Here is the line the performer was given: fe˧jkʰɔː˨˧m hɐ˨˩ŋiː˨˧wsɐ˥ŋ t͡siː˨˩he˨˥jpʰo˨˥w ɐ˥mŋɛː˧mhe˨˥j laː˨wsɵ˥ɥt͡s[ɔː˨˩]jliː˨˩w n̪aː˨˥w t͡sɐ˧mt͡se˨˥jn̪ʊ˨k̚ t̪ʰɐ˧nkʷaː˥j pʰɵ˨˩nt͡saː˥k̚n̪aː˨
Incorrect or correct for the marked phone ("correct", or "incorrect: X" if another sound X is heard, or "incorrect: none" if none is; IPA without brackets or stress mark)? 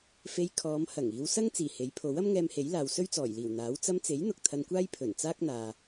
correct